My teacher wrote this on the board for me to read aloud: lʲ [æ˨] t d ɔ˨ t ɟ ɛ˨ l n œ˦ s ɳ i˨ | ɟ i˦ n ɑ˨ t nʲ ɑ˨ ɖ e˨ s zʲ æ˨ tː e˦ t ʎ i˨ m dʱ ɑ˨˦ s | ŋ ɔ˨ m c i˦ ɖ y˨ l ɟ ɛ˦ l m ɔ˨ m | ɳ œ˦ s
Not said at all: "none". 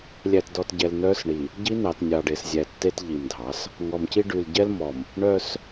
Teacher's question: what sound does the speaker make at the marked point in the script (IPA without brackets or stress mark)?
æ˨